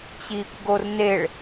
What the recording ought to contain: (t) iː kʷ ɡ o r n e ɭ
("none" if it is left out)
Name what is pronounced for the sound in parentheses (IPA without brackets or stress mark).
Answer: t͡ɕ